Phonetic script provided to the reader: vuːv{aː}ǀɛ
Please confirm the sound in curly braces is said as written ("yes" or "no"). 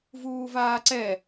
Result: yes